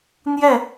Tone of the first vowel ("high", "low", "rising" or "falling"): falling